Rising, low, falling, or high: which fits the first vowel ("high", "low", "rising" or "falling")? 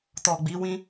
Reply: low